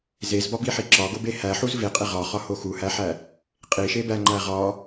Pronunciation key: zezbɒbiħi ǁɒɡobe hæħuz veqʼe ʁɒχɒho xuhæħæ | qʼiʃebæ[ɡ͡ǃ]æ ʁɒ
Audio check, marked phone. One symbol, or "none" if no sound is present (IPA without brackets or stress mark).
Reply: ŋ͡ǃ